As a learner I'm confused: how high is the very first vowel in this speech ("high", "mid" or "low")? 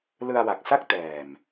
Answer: high